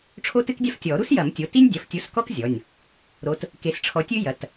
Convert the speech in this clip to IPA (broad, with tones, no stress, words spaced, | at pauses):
ʈ͡ʂʰo˥tɨ˥kdʲa˥f tʲɔ˨˩˦ ɾu˥sjɐ˨˩˦mtʲo˩˧˩ti˥nʲ dʲɐ˩˧˩ftʲu˨˦s kɔ˥k zʲɔ˩˧˩nʲ | ɾo˨˦t | ke˨˦sʈ͡ʂʰɔ˨˦tʲɨ˥ jɐ˩˧˩t